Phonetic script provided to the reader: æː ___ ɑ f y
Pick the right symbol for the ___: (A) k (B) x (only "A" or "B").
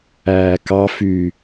A